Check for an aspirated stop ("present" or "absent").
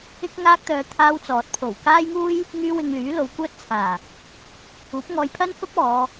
present